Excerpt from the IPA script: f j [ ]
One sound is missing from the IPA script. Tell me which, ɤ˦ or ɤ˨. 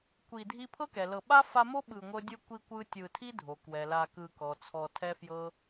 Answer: ɤ˦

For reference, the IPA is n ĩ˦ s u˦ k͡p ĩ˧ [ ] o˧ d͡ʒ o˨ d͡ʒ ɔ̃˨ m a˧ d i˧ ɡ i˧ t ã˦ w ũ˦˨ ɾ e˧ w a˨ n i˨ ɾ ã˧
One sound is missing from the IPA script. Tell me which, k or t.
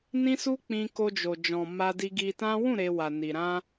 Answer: k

